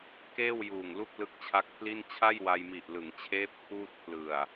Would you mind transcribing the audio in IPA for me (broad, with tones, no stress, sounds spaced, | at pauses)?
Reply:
k eː˥˩ w j uː˨˩ ŋ l u˥˩ k̚ l ɯ˦˥ k̚ t͡ɕʰ a˦˥ k̚ pʰ l i˥˩ n t͡ɕʰ a˥˩ j w a˧ j m i˨˩ ʔ l ɯ˩˦ ŋ t͡ɕʰ eː˦˥ p̚ kʰ uː˥˩ t̚ pʰ l ɯ˨˩ a̯